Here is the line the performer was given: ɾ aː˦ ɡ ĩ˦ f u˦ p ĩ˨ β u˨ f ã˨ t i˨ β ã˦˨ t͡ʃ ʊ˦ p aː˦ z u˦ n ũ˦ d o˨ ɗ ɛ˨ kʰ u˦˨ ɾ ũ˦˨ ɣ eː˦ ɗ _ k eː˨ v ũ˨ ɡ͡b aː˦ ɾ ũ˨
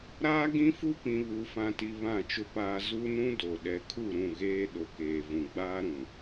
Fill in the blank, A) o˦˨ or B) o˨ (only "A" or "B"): B